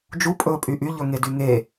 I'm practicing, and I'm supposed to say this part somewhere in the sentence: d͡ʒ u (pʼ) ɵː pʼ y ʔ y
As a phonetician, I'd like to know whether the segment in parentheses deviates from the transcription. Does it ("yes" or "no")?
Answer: no